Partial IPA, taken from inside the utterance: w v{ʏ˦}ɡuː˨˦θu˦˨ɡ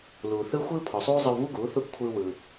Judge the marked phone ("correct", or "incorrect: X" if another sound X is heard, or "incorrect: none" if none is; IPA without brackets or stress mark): incorrect: u˦